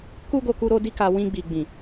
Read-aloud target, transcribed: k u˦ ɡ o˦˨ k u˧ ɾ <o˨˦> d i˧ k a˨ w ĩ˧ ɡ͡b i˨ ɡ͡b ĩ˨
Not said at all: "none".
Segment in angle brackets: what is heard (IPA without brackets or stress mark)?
o˧